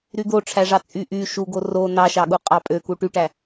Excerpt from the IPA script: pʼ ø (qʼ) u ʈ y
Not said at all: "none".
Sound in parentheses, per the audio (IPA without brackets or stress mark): k